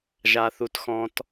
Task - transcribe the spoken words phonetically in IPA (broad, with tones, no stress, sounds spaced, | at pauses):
ʒ a˦˥ θ u˦˥ t x ɔ̃˦˥ t